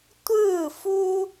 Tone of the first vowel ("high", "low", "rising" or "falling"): falling